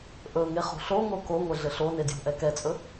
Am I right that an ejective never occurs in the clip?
no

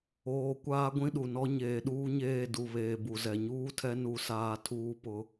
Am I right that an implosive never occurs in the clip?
no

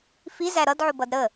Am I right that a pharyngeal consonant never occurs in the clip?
no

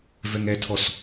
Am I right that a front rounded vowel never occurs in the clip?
yes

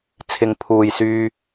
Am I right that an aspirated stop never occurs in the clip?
no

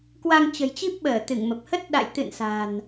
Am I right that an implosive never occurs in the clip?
no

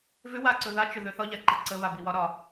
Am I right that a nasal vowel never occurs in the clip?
yes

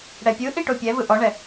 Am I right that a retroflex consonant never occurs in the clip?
no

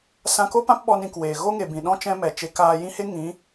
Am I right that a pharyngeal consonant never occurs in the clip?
yes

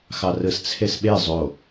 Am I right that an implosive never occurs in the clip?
no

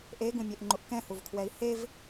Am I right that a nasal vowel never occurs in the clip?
no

